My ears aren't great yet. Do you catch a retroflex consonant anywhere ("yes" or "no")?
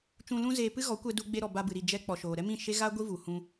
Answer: no